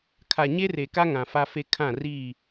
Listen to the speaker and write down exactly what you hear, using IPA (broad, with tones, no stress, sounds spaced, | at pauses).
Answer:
kʰ a˨ ɲ e˦ r e˨ k a˦ ŋ ã˨ f a˦ f e˦ kʰ ã˦˨ r iː˦˨